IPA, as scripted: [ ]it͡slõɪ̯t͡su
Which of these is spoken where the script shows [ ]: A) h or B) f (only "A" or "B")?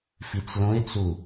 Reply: B